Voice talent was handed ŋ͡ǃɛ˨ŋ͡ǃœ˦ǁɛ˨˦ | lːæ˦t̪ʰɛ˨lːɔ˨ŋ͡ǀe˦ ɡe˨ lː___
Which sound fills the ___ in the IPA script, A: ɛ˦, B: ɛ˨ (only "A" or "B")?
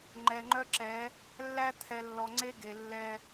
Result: A